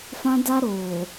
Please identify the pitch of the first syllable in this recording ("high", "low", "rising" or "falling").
high